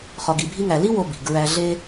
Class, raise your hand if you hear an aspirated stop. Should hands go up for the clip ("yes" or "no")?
no